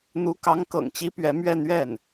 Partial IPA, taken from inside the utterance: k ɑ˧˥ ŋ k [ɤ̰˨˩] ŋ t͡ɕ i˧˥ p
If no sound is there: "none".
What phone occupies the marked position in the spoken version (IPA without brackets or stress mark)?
ɤ̰˨˩